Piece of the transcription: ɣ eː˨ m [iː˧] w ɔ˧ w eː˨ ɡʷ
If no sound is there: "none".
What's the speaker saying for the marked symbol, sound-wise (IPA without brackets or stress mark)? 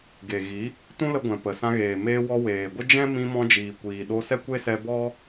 eː˧